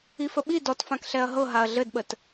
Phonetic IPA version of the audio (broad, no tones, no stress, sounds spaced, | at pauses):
i f ə ɓ i d ɔ t f ã k ɬ ɛ ɐ̯ ɦ ɤ ɦ a ɐ̯ ɮ ɘ d ɓ ə t